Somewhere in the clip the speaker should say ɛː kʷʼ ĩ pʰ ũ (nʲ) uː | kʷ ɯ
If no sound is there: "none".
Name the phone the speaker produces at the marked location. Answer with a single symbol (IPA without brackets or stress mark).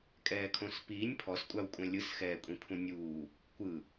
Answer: nʲ